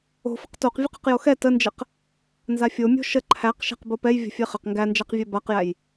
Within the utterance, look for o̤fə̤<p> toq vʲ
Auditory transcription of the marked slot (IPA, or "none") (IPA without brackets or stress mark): q